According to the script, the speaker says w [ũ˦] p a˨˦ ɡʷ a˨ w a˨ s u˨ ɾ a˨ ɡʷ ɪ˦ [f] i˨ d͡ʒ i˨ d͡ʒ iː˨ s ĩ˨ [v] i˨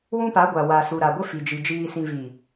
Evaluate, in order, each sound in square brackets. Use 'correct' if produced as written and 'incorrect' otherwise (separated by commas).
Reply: correct, correct, correct